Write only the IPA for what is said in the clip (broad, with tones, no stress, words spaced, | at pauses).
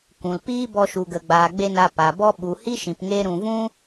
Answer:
kʷũ˨l piː˦bɔ˧ ʃu˨ɡə˨ɡ͡baː˨ ɡ͡be˧ na˧ pa˨bɔ˦ ɓu˨hi˦ʃĩ˨p ŋe˦ɾũ˧ vũ˦